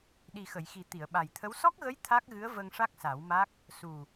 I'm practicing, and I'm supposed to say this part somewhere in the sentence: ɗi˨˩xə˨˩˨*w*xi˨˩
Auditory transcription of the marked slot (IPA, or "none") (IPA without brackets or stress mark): j